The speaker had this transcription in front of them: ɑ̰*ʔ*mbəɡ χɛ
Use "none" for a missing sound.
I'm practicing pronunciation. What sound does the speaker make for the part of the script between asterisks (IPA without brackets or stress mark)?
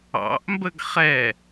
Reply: ʔ